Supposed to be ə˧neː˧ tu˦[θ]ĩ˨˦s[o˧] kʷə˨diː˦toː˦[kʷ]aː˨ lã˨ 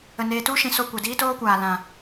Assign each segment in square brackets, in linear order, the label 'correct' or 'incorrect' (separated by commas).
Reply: incorrect, correct, correct